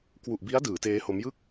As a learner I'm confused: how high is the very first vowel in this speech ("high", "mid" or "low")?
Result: high